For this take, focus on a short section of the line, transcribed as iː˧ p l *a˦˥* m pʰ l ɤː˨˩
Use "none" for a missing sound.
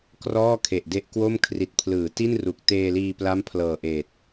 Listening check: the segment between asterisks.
a˦˥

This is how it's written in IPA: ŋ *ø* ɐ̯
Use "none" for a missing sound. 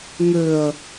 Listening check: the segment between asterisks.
ø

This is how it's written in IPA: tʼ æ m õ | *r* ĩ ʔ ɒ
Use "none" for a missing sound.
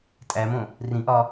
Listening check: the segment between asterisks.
r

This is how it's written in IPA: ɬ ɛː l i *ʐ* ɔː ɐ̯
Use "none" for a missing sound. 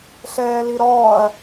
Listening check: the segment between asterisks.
ɾ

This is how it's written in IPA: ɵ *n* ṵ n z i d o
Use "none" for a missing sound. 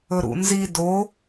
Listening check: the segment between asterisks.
ɾ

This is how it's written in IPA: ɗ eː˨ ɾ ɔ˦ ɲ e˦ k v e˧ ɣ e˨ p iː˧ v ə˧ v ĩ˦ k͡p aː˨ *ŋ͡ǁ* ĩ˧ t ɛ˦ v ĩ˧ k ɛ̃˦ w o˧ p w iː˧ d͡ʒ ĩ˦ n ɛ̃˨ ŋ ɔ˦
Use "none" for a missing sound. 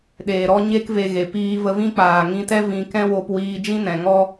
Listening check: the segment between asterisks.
ŋ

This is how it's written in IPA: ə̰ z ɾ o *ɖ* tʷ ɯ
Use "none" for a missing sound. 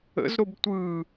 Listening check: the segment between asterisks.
b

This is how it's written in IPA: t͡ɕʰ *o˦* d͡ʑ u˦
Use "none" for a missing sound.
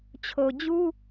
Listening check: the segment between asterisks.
o˨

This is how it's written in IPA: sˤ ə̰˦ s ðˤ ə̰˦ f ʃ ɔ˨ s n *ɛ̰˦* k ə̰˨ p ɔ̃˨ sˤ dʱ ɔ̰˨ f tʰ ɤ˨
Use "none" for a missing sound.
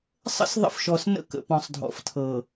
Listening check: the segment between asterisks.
ə̰˦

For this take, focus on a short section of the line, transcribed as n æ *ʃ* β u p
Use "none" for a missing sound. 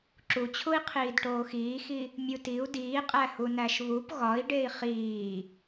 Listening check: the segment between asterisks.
ʃ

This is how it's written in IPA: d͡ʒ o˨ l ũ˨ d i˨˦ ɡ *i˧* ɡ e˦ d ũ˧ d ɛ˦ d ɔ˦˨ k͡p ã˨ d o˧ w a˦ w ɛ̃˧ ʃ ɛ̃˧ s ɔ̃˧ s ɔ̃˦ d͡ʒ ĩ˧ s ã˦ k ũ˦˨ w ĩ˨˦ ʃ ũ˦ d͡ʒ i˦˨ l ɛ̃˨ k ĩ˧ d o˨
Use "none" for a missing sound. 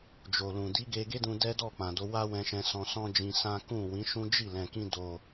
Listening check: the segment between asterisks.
e˧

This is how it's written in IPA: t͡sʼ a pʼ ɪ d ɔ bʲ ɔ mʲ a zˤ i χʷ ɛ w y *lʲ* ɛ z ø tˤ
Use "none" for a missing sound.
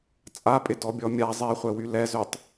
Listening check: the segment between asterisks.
l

